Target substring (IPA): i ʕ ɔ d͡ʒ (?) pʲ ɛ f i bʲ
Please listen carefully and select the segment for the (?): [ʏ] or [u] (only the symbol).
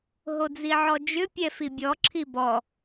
ʏ